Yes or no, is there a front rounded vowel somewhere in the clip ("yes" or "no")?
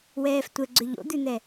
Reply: yes